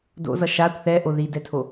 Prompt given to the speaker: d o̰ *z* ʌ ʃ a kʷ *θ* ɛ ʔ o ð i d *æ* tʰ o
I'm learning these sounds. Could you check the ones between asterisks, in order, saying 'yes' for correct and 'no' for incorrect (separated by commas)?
yes, yes, no